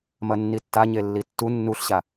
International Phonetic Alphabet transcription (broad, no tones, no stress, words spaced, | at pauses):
mɐnːitːaɲe lːitːu nːuɬɕa